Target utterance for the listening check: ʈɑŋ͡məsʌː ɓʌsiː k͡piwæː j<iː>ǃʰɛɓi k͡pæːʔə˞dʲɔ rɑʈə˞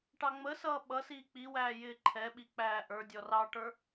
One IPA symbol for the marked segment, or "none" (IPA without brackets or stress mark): ɪː